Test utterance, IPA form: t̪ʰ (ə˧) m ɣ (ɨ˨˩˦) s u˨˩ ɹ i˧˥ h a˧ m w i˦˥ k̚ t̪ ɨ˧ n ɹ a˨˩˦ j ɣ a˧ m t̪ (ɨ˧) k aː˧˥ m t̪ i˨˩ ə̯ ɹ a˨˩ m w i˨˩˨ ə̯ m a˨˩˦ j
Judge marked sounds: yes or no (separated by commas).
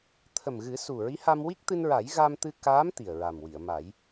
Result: no, yes, yes